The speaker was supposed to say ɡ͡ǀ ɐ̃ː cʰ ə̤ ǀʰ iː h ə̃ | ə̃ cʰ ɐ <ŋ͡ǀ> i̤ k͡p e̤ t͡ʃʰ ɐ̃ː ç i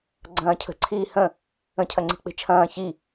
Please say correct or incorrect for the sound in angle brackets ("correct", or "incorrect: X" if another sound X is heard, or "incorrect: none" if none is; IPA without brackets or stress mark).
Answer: correct